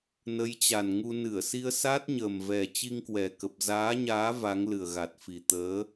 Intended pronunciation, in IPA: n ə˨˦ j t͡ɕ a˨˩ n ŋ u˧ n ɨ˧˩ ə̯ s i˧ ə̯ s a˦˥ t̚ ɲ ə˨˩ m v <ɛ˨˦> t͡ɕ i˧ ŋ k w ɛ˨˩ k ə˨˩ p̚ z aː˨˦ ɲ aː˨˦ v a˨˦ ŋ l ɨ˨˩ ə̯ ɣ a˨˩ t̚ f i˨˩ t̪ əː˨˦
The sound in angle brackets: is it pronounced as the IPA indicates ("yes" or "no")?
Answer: no